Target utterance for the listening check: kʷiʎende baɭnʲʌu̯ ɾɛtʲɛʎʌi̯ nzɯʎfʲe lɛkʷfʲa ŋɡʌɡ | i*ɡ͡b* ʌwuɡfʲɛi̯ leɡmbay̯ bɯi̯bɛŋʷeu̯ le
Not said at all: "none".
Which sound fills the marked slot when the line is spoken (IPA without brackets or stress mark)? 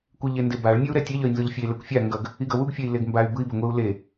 ɡ